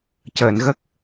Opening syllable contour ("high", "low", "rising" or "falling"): low